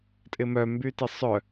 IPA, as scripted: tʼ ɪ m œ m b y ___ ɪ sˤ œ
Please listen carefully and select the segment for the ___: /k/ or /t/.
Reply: t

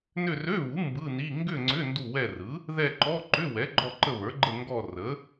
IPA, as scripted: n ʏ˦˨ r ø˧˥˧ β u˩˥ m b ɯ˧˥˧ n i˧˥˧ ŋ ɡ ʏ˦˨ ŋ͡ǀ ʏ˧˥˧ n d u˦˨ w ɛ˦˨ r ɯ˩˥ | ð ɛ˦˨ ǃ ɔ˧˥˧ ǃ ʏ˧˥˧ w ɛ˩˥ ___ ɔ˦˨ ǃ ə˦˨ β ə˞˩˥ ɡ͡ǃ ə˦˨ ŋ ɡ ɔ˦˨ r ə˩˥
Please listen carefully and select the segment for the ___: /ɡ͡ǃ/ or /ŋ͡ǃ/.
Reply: ɡ͡ǃ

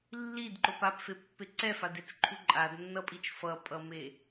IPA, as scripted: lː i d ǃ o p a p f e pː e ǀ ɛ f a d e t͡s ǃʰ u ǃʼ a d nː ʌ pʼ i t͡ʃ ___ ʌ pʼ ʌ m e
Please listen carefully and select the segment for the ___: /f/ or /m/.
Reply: f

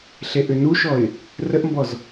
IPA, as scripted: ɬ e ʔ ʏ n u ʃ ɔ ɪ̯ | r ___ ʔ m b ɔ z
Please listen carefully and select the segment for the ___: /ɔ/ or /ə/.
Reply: ə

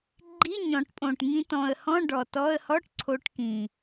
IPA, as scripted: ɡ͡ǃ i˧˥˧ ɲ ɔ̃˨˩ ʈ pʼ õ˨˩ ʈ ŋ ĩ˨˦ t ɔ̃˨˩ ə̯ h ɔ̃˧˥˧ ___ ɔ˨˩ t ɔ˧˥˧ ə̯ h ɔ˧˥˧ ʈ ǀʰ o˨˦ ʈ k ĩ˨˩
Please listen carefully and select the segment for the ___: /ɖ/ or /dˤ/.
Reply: ɖ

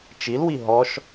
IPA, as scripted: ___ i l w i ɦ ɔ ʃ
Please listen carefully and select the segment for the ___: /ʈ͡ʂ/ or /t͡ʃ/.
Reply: t͡ʃ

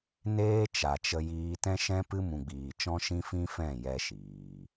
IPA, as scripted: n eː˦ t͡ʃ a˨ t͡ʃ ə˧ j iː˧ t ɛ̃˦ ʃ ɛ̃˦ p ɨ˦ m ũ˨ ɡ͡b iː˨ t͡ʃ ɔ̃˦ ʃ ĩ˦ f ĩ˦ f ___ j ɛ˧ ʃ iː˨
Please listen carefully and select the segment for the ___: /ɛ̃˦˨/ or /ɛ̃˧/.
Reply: ɛ̃˦˨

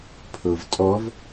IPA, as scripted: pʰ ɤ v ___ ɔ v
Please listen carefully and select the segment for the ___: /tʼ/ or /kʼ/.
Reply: tʼ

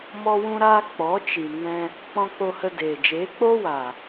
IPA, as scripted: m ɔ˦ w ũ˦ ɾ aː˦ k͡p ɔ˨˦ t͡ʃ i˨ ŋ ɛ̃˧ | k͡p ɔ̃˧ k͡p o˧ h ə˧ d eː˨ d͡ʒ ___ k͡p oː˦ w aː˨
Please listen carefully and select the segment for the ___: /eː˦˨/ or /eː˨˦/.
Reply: eː˨˦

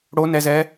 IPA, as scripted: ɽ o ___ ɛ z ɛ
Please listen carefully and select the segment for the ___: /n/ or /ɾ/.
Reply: n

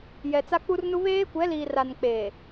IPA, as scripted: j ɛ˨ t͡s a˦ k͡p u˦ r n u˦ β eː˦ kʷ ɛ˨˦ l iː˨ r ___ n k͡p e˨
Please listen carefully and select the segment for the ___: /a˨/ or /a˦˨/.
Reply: a˨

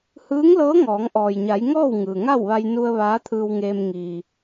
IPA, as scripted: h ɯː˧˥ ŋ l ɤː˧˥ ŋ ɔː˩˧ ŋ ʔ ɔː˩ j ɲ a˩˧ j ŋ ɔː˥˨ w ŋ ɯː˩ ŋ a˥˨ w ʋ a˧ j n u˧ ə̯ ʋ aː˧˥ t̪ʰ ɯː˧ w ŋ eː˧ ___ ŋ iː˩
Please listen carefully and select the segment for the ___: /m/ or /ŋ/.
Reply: m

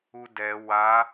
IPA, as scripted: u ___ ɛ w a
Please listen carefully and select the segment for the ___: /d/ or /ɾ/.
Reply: d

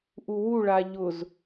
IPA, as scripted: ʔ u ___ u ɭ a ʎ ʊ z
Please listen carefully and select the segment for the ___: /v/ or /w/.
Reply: w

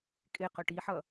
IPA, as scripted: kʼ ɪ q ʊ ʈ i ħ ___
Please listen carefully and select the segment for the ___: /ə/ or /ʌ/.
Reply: ʌ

